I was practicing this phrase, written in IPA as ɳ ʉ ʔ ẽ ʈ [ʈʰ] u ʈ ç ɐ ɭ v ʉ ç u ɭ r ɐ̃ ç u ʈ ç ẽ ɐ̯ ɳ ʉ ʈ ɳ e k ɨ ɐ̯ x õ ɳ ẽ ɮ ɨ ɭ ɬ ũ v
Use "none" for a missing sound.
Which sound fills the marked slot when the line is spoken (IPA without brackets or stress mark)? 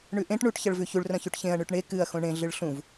ɳ